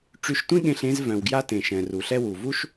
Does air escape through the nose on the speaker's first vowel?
no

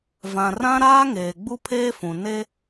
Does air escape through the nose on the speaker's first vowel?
yes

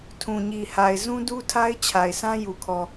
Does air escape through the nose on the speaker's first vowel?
yes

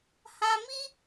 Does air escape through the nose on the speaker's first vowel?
yes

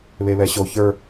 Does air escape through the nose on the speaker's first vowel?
no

